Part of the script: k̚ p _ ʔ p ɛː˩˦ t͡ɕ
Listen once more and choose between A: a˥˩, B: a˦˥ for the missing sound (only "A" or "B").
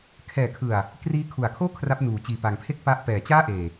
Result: B